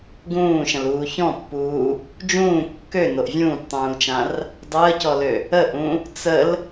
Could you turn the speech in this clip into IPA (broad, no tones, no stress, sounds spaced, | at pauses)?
ɡ ũː ʃ ə̃ l uː ç ɔ̃ pː uː | d͡ʒ ũː kː ø n o ʔ vʲ ũː p tˤ ũː l t͡ʃ ã r | dˤ əː c ɔ l ø | ə ʔ ũ | t͡s ə l